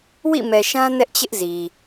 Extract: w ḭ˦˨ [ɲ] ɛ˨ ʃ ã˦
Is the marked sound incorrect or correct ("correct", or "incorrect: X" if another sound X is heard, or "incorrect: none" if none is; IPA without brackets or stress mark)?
incorrect: m